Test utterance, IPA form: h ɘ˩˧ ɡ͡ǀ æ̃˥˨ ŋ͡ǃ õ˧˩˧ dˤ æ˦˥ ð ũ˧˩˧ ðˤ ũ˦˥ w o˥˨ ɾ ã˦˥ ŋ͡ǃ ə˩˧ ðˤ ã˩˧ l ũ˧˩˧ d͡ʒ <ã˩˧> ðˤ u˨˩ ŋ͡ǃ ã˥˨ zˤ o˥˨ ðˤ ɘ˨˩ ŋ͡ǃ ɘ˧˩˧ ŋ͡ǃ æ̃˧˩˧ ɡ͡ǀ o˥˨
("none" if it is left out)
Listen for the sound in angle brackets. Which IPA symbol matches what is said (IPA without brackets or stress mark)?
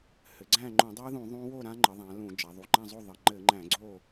a˩˧